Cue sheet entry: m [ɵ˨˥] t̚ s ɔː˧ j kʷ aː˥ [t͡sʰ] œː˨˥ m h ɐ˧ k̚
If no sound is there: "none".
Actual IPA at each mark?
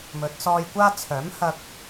ɵ˨˥, t͡sʰ

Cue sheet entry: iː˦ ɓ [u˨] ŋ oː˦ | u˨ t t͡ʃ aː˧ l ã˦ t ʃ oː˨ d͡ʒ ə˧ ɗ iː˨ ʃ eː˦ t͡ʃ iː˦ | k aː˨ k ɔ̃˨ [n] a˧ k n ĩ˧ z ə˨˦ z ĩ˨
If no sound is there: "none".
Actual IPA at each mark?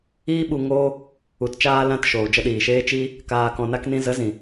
u˧, n

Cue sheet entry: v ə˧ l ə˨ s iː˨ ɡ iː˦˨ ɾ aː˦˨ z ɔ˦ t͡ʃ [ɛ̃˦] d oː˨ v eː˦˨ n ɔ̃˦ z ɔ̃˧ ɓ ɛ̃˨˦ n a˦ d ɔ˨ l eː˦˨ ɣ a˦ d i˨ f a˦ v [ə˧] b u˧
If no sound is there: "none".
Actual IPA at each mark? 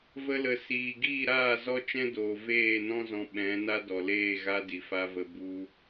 ɛ̃˦, ə˧

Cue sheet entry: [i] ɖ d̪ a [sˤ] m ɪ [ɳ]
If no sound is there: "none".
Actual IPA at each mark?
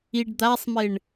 i, sˤ, ɳ

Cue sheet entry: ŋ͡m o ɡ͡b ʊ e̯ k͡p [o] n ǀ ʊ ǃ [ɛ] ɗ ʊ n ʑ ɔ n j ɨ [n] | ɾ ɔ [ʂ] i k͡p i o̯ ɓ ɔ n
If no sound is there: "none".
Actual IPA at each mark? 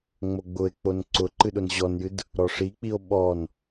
o, ɨ, d, ʂ

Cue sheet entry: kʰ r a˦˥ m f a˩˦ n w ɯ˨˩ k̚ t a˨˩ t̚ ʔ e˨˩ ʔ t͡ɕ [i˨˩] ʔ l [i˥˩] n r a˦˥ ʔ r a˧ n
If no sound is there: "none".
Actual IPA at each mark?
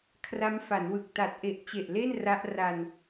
e˨˩, e˥˩

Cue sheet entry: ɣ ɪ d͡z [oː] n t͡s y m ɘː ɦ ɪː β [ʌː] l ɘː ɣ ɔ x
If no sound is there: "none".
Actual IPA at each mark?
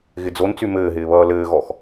o, ʌː

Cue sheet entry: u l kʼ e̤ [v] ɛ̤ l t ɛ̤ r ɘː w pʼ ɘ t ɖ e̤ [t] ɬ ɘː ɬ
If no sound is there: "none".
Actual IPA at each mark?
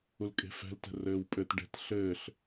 f, t

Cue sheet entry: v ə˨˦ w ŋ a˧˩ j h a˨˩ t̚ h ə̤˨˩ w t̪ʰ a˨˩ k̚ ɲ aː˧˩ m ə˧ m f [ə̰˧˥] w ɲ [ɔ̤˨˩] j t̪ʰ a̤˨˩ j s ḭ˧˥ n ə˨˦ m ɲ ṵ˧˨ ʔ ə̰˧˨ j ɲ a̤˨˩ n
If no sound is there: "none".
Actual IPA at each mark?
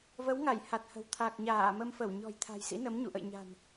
ə˧˩, ɔ̤˨˩

